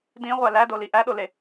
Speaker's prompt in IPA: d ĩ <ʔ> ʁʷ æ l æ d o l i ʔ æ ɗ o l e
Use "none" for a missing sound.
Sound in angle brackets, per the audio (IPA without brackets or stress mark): none